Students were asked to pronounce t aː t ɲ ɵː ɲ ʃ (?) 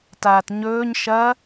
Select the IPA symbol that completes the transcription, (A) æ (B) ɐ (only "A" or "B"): B